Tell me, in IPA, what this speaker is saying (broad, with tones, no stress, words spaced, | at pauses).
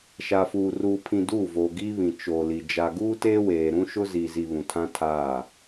ʃa˨fuː˨ ruː˨pʰĩ˨ duː˦˨voː˨ɡiː˦βĩ˨ t͡ʃoː˨ li˨ d͡ʒa˨ɡuː˦teː˦ weː˨ɾũ˦ʃʊ˦ ziː˨zi˨ βũ˨tʰã˦tʰaː˦˨